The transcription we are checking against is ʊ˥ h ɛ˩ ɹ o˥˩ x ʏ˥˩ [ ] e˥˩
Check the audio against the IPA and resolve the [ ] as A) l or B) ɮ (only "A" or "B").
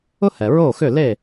A